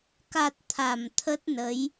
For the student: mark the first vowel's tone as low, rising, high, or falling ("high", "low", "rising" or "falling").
low